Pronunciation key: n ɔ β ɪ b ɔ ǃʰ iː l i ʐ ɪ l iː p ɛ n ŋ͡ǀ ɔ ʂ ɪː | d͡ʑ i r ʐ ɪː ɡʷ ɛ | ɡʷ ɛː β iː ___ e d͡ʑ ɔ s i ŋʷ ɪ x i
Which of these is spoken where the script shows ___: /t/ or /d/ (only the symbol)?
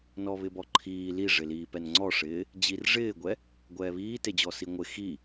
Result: t